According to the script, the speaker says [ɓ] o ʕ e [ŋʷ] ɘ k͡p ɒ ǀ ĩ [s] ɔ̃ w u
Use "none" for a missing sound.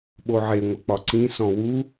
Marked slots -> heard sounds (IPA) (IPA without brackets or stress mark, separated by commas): ɓ, ŋʷ, s